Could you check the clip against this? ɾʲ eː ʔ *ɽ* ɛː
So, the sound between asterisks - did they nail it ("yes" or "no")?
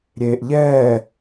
no